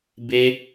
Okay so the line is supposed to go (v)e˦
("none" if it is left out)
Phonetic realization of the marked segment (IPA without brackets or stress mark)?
b